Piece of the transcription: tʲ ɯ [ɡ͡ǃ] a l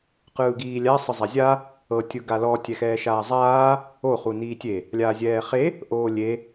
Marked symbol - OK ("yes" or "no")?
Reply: no